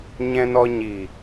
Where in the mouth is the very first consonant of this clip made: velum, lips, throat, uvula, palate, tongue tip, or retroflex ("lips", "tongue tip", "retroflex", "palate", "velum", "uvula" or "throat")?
palate